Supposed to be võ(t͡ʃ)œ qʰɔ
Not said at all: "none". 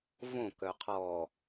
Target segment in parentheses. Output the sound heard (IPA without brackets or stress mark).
k